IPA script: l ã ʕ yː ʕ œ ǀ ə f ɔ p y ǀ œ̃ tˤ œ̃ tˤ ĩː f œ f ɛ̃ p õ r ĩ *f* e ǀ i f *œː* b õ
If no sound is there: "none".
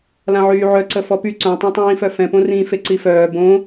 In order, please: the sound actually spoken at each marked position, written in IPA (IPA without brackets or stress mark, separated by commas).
f, œː